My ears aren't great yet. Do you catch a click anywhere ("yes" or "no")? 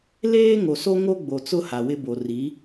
no